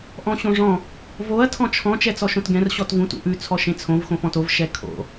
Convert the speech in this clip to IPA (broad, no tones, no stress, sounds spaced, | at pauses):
ʔ ɔ̃ ɕ õ ʐ ɔ̃ | v o ɐ̯ tʰ ɔ̃ t͡ʃʰ ɔ̃ t͡ʃ ɛ t͡s ɔ ʃ õ t ɡ ɛ̃ r ɕ ɔ t v ũ t ṵ ʔ ʉ t͡sʰ ɔ ʃ ẽ t͡sʰ õ v x õ f ɔ̃ t o v ʃ ɛ kʰ o̰